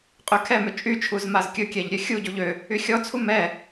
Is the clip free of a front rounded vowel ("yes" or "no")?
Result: no